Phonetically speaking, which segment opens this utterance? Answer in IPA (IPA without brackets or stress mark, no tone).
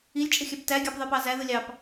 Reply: i